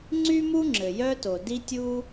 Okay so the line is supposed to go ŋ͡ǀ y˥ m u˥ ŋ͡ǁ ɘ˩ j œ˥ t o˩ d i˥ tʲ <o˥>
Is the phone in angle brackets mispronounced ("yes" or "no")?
yes